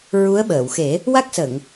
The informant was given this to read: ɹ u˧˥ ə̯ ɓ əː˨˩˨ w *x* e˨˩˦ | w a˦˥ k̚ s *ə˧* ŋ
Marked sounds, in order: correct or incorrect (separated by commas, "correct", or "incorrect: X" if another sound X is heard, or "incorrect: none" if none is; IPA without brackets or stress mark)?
correct, incorrect: ə˨˩˨